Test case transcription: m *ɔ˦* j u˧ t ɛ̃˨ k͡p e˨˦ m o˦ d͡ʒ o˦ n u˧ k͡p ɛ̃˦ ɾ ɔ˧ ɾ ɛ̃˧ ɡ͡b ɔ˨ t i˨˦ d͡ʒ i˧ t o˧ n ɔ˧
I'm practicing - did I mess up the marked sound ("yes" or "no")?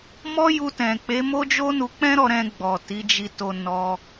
no